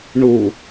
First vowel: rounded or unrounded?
rounded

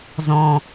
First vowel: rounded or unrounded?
rounded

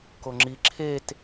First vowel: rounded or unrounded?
rounded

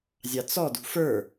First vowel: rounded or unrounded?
unrounded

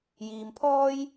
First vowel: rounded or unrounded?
unrounded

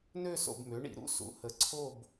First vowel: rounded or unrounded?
rounded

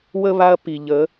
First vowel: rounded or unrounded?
unrounded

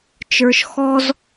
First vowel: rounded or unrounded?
unrounded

